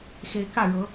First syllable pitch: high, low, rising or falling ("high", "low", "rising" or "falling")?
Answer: rising